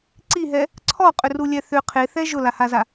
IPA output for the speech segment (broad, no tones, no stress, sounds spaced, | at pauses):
ǀ i ɦ ɛ | ǀʰ ɔ qʼ ʏ r u lʲ ɛ θ ʏ qʰ e θ ɛ ʒ ʊ l a h a z a